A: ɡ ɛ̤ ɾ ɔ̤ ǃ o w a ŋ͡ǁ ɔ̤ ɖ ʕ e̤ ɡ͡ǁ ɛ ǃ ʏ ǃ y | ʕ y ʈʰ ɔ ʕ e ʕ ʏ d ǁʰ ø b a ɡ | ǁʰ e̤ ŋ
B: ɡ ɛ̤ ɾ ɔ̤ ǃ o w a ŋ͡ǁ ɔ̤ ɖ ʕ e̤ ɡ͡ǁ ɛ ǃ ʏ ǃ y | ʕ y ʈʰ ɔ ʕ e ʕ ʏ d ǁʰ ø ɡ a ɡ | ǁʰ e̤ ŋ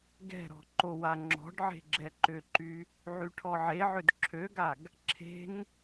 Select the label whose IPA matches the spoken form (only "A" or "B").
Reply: B